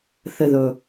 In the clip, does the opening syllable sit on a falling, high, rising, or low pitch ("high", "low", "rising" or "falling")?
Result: low